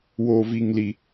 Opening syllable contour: high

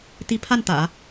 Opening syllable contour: rising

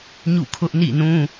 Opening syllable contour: falling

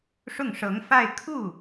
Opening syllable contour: falling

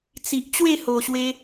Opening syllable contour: low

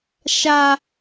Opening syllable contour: high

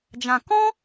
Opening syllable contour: low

